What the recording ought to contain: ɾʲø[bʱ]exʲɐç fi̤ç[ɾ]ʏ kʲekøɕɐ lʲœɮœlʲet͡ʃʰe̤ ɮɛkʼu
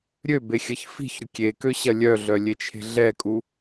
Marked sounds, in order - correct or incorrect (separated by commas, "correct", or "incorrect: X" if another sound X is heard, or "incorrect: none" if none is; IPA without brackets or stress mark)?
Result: incorrect: b, correct